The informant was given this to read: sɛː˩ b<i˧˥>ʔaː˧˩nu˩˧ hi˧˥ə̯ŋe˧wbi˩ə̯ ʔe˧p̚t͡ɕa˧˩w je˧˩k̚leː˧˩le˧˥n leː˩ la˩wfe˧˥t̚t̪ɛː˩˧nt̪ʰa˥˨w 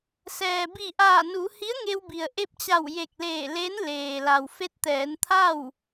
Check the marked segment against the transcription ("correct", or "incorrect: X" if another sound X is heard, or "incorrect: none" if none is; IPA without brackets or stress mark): incorrect: i˧˩